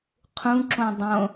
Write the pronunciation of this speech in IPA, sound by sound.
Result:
qʰ ũ ǁ õ dˤ õ

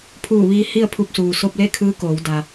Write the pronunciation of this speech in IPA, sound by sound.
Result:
pʰ uː˧˩ ʋ iː˧ h i˥˨ ə̯ pʰ u˧ p̚ s uː˩ s o˧ p̚ l e˥˨ kʰ ɯː˧˥ k oː˩˧ w d a˩

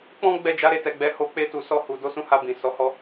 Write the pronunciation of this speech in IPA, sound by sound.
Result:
k͡p ɔ̃˦ ɡ͡b ɛ˦˨ d͡ʒ a˨˦ ɾ e˧ t ɛ˨ ɡ͡b ɛ˨˦ h o˧ k͡p e˧ t u˨ s ɔ˧ h u˨ d o˨˦ s ũ˧ h a˧ b ĩ˨ s ɔ˨˦ h ɔ˦

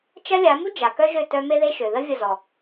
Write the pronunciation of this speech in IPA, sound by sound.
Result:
t͡ʃ ɐ˦ lʲ a˨˦ m u˦ d͡ʒ a˨ k œ˦ ʒ ø˦˨ t œ˧ m e˦ ð e˦ ʃ ø˨ ð ə˦ vʲ ə˦˨ z ɔ˨

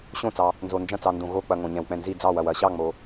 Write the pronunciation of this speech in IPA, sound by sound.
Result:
ɕ õ˦˨ t͡s ɑ˨ | n z o˨ n d͡ʒ ɐ̃˦˨ t͡s ɑ˨ n d õ˨ ɣ o˦˨ k͡p ɐ˨ ŋ õ˨ ɲ ɛ̃˨ w k͡p ɛ̃˦˨ n z i˦˨ d͡z ɑ˦˨ w ɐ˨ w ɐ˨ ɕ ɑ˦˨ ŋ͡m o˨

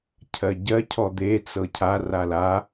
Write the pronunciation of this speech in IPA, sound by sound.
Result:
cʰ ɜ ɟ ɜ cʰ ɔ d̪ e t͡s ɤ cʰ a r a l a

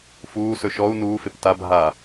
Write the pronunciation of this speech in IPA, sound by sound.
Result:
f uː s ɵ ʃ ɔ u̯ n uː f e p t a bʱ a

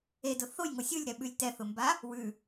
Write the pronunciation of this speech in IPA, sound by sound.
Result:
e d ʊ θ o j ŋ o sʲ ɯ lʲ ɾ ɛ ɓ ʉ lʲ t ɛ θ ʊ m b a | w ʉ

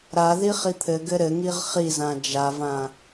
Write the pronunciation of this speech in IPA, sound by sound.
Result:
ɾ a ð i χ i t̪ʰ ɘ ɡ ɘ ɾ ɘ ŋ i ʁ χ i z ã d͡ʒ a v ã

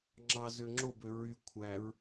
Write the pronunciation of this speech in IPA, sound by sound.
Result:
ŋ͡ǁ ɑ z ø ŋ͡ǁ o b ø ɹ y kʷʰ æ ɹ

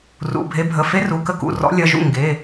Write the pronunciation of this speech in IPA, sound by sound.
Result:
r ṵ˩˧˩ bʱ e˨˦ bʱ ə˩˧˩ f e˦˥ r u˩˧˩ k ə˥˩ k ṵ˩˧˩ r ɔ̰˨˦ lʲ ɐ˩˧˩ ʒ ṵ˥˩ ŋ ɡ e˩˧˩

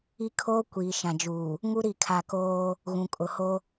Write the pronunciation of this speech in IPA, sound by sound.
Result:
i˦ kʰ oː˦ kʷ iː˨ ʃ ã˨ d͡ʒ uː˨ | ŋ u˦ ɾ i˦˨ kʰ a˨ k oː˦ | ɣ ũ˨ kʼ ʊ˨ h o˦

